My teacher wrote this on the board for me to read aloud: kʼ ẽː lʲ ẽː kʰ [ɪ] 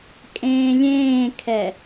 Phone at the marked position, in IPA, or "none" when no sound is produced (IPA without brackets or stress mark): ɛ